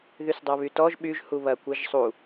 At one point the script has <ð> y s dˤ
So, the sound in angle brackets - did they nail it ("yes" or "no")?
yes